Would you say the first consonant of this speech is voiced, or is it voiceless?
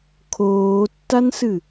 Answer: voiceless